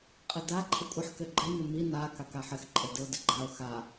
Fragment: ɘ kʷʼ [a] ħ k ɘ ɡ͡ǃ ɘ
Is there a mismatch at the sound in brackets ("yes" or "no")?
yes